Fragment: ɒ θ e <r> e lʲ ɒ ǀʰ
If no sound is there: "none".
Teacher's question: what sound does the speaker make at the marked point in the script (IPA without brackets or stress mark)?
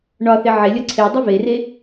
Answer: ʕ